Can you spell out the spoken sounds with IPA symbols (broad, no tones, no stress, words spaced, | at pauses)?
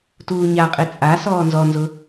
tuːɲaqʼe t͡sʼa sɔːnzɔnzʊ